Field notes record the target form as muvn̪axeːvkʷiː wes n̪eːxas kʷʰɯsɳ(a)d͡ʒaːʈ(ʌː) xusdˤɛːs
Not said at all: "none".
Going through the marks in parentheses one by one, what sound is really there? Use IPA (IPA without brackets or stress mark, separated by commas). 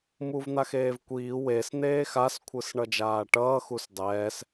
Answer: ʌ, ʌː